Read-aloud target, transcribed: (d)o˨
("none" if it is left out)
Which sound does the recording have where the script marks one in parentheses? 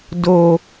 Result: d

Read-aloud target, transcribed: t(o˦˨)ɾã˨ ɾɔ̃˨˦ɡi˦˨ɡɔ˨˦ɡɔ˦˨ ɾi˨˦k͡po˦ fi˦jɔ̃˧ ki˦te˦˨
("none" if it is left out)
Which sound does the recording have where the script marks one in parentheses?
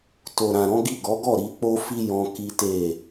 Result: o˨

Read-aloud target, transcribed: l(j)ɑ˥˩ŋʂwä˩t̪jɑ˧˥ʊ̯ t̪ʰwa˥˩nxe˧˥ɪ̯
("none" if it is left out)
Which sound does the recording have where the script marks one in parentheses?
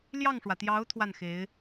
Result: j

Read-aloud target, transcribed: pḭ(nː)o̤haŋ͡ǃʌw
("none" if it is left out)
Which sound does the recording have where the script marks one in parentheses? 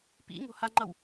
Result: ŋ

